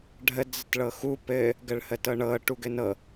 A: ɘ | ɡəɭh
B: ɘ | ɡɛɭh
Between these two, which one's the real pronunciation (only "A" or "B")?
A